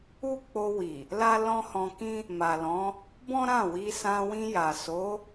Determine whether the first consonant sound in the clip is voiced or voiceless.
voiceless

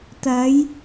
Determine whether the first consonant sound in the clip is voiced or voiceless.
voiceless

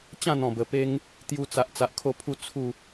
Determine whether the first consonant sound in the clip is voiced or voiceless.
voiceless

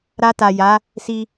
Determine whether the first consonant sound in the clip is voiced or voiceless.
voiced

